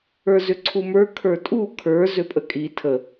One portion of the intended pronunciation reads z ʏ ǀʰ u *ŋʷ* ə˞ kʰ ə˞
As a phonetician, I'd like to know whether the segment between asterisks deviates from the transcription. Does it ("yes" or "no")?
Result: yes